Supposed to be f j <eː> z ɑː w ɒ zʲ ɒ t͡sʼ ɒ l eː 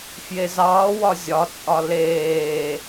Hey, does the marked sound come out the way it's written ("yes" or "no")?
no